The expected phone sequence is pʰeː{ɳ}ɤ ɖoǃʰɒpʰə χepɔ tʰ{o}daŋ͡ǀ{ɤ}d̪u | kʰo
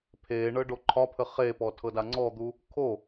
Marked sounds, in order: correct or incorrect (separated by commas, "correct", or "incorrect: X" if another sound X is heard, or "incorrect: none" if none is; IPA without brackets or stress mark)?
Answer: correct, incorrect: ɤ, incorrect: ɔ